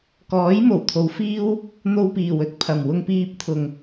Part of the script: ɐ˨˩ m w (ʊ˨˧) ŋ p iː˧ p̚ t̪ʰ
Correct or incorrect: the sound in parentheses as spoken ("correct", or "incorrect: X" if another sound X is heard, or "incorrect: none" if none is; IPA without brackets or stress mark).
incorrect: ʊ˧